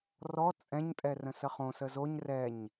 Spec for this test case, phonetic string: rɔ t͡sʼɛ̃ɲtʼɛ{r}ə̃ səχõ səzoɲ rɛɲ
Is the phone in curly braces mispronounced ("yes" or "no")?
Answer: no